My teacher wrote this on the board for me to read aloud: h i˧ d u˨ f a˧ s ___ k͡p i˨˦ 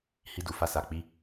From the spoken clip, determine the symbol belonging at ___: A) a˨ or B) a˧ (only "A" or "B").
A